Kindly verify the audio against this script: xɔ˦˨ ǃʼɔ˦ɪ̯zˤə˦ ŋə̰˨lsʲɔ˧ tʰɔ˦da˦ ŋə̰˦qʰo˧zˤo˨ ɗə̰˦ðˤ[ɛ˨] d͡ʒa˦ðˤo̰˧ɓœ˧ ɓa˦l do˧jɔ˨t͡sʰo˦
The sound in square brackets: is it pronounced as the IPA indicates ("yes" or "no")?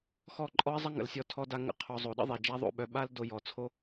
no